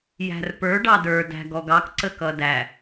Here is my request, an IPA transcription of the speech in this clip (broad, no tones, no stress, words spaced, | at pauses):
jæ̤rpə˞ ɖɑdə˞ dæ̤ɡɔɡɑk ǀəkʌdæ